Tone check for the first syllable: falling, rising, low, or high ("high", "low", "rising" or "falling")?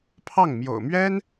falling